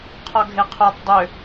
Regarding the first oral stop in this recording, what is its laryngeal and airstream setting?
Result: aspirated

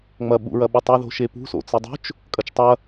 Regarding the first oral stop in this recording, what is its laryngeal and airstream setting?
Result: implosive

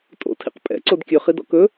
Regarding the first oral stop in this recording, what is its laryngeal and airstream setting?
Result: ejective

